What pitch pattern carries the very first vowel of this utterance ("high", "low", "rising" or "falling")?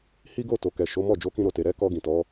high